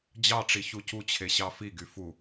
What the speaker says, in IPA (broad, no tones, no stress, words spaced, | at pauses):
d͡ʑɑʈ͡ʂi çucut͡ɕʰe ɕɑfiɡy fu